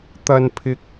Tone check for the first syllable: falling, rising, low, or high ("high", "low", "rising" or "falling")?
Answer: low